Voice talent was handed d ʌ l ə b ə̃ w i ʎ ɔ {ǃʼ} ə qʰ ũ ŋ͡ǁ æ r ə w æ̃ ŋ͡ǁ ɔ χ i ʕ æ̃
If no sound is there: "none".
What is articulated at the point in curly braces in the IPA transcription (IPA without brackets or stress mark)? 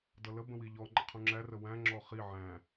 ŋ͡ǃ